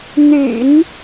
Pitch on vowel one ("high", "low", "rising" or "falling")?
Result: low